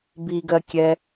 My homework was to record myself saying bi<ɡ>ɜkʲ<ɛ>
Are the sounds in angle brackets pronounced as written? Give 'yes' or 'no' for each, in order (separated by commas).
yes, yes